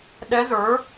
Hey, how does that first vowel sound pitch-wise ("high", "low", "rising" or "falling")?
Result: rising